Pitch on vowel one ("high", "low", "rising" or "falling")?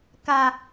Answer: low